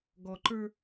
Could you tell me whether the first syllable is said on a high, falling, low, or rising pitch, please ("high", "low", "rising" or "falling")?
low